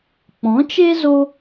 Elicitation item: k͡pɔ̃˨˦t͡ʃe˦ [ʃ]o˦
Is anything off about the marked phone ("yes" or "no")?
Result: yes